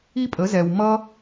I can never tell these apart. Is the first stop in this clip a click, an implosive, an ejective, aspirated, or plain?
ejective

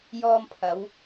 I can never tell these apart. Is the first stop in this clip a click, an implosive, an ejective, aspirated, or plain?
aspirated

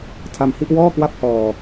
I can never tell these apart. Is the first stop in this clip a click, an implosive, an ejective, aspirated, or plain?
aspirated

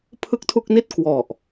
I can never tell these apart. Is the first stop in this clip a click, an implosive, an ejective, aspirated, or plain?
aspirated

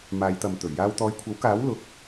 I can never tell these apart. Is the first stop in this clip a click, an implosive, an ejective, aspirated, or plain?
plain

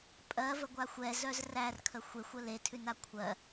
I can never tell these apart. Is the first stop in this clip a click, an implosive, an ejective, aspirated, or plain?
ejective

